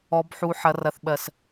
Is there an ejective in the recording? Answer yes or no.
no